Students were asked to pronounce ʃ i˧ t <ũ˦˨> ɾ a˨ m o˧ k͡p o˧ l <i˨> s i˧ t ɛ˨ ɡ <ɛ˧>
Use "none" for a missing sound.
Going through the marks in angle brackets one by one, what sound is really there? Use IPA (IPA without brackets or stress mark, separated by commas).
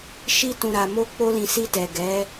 ũ˨, ĩ˨, ɛ˨˦